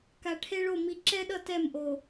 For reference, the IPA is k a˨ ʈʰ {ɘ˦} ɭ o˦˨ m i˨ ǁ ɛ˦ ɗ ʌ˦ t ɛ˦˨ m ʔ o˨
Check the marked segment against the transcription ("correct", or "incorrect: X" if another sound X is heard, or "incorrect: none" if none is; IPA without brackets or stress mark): incorrect: e˦